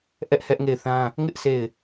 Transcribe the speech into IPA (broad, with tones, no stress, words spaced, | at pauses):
ʔɛ˦ʔhɛ˦ʔŋe˦˨ɪ̯θã˦ | ŋɪ˦ʔ se˦˨ɪ̯